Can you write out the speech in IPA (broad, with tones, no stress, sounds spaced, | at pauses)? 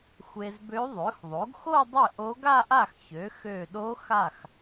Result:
xʷ e˧ z b ø˧˥ ðˤ ø˩˥ x ðˤ o˩˥ ɡ x o˥˧ dˤ ɘ˥˩ ʔ o˧˥ ɡ a˥˧ ʔ a˥˩ x ç ø˩˥ x ø˧˩ ɗ o˧˥ x a˥˩ x